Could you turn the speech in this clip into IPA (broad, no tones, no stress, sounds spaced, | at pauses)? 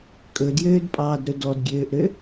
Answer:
kʼ ɵ d j øː d pʼ ɑː d ɾ ɵ d ɔ d ɡʲ øː ʔ ɾ ø